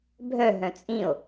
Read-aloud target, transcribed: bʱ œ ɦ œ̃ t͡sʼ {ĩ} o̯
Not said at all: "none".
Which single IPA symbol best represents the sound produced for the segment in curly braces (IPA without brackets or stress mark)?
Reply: ĩ